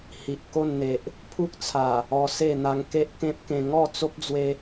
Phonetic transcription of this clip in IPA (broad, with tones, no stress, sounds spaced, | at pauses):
h i˨ ʔ k o˥˧ n n̪ e˨ ʔ | pʰ u˦ k̚ t͡sʰ a˨˩ | ɔ˧ s e˥˧ n̪ a˧ ŋ k e˦ ʔ k ẽ˦ p̚ k ẽ˧ ŋ ɔ˥˧ t͡s o˦ p̚ d͡z w e˧